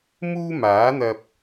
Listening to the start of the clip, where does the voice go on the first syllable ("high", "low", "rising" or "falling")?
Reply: high